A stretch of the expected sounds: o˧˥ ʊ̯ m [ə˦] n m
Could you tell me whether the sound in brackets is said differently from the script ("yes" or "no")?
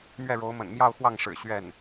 yes